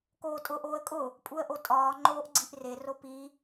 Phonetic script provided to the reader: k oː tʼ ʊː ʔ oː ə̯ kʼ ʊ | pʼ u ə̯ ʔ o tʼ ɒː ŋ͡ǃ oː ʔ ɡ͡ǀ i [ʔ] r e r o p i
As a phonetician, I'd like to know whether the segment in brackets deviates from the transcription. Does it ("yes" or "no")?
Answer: no